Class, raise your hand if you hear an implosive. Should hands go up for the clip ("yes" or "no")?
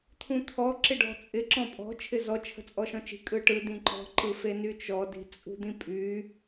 no